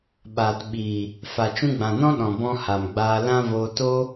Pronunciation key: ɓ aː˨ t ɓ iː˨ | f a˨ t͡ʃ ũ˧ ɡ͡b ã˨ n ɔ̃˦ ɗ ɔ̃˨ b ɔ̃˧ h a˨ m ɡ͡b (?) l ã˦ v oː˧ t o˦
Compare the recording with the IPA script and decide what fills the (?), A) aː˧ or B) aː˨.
A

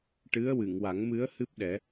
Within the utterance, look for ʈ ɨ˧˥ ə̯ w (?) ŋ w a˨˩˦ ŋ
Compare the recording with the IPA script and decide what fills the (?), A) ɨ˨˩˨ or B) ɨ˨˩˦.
A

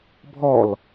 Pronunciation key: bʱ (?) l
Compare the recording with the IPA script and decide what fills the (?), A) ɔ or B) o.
A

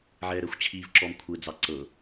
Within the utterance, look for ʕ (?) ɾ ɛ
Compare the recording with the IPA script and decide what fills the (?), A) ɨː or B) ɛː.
B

